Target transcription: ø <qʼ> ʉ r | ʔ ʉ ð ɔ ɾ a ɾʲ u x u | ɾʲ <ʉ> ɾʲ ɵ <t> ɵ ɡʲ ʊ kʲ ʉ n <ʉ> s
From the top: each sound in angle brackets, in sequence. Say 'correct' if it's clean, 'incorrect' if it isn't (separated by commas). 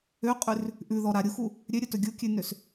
correct, incorrect, correct, incorrect